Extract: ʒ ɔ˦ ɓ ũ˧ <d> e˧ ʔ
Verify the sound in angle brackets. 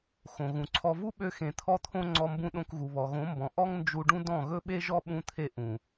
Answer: incorrect: t̪ʰ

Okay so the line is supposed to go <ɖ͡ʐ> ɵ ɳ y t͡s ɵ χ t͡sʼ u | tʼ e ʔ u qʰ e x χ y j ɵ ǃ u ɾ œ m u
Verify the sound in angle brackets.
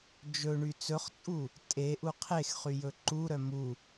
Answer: incorrect: d͡ʒ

